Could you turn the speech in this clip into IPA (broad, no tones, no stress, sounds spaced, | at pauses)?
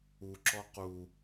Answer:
u ǁ ɔ q u